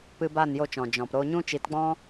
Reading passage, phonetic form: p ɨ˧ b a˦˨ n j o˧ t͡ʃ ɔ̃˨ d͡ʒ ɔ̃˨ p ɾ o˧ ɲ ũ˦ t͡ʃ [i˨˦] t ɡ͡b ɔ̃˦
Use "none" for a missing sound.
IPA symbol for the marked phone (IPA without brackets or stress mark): i˨˦